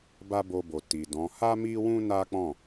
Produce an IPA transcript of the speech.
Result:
b a˦ b o˧ b o˨ t i˨ d ɔ̃˨˦ h a˦ m i˦ w ũ˦ n a˦ k͡p ɔ̃˦˨

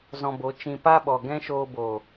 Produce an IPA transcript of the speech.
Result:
z ɔ̃˧ b o˨˦ t͡ʃ ĩ˧ p a˦ ɓ ɔ˨ ɡ ɛ̃˦ ʃ oː˧ b oː˨

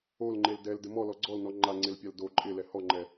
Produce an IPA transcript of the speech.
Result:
o l ŋ͡ǃ e l d ɛ l d ɪ m ɔ l ɔ ɡ͡ǀ ɔ l n ɔ ŋ͡ǃ a ŋ͡ǀ e l pʲ a l d o ǃʼ ɪ l ɛ h ɔ ŋ͡ǃ ɛ

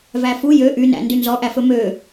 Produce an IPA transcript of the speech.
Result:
v æ f u j ø ʔ y n æ̰ n d y n z ɔ ʔ æ f ɵ m ø

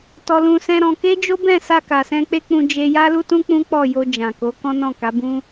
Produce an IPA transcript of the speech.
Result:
t ɔ˧ l ũ˧ s ɛ̃˦ ɾ ɔ̃˧ k e˦ d͡ʒ o˦ b ɛ̃˦˨ s a˧ k a˨ s ɛ̃˧ k͡p e˦ k͡p ũ˧ d͡ʒ e˧ j a˦ l u˦ t ũ˦ k͡p ũ˦ k͡p ɔ˦˨ j o˧ d͡ʒ ã˨ k o˨˦ k ɔ̃˦ n ɔ̃˦˨ k a˨˦ b ũ˦

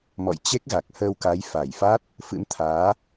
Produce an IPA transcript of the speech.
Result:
m ɔ̰˧˨ j t͡ɕ e˦˥ k̚ ɣ a˨˩ k̚ h əː˧ w k a˨˦ j f a˧˩ j f a˦˥ t̚ | f ɨ̰˧˥ m t̪ʰ aː˨˦

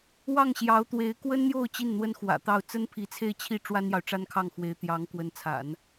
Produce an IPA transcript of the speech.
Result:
w ɑ˥˩ ŋ ɕ j ɑ˧˥ ʊ̯ t̪ w e˧˥ ɪ̯ k w ə˥ n n̪ j o˥˧ ʊ̯ t͡ɕ i˥˩ n n̪ w ə˥ n x w ä̰˨˩ t̪ ɑ˥˩ ʊ̯ t͡s ə˥ n pʰ i˧˥ t͡sʰ e˥˧ ɪ̯ t͡ɕʰ i˥˩ ʈ͡ʂ w a˥ n j ɑ˨ ʊ̯ ʈ͡ʂ a˥ n kʰ ɑ˥˩ ŋ x w e˧˥ ɪ̯ t̪ j ɑ˧˥ ŋ k w ə˧˥ n t͡sʰ a̰˨˩˦ n

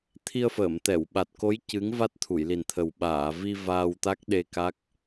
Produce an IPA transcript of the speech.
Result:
t̪ʰ i˧ ə̯ f əː˨˩˨ m t̪ ɛ˨˩˨ w ɓ a˨˩ t̚ k o˧˥ j c ɨ˧˥ ŋ v a˦˥ t̚ t̪ʰ u˨˩˨ j l i˨˩ n t̪ʰ ə˨˩ w ɓ aː˨˩˨ v i˧ v aː˧ w t̪ a˦˥ k̚ ɗ e˧ k a˦˥ k̚

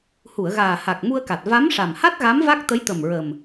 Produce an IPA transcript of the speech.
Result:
h u˨˩˨ ə̯ ɣ aː˨˩ h a˨˩ k̚ m u˧ ə̯ k a˨˩ t̚ v a˧˥ m ʂ a˨˩ m h a˦˥ t̚ ɣ a˧˥ m v a˦˥ k̚ t̪ ə˧˥ j t̪ ə˨˩ m ɹ ə˨˩ m

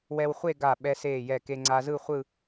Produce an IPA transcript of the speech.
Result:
w ɛ˧ w χʷ e˥˧ ɡ a˧˩ ɓ ɛ˧ s eː˧˩ j ɛ˧˩ k e˧ ŋ͡ǀ a˧ z ɯ˥˧ χʷ ɯ˥˧

